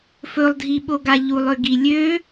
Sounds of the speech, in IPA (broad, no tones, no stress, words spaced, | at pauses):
fɵlˠdʱi ɓoɡaʎulˠ øɡi lʲø